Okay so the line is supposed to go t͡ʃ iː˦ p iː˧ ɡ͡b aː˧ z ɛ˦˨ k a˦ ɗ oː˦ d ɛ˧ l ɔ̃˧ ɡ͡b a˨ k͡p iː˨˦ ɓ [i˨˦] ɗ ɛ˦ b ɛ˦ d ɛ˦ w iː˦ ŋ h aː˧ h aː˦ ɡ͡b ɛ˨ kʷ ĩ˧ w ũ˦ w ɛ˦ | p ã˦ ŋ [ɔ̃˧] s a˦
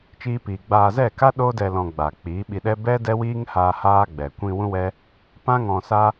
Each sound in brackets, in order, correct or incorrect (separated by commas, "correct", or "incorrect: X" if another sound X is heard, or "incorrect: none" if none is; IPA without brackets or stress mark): incorrect: i˧, correct